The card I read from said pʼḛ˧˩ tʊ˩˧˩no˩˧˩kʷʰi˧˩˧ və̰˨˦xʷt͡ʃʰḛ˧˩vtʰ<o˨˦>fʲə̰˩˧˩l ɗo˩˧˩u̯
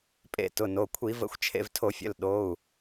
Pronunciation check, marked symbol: incorrect: o˧˩˧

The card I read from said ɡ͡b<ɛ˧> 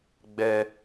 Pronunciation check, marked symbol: correct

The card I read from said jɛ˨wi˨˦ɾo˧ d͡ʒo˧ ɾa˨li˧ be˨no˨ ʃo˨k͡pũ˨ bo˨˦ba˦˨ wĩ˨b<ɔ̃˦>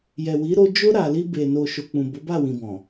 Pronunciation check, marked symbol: incorrect: ɔ̃˨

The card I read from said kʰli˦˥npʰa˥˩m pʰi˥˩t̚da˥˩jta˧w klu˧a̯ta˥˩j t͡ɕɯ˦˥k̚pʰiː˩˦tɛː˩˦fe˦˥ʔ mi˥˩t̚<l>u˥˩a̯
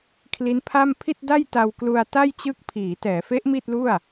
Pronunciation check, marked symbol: correct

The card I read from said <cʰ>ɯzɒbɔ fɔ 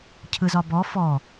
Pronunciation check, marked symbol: correct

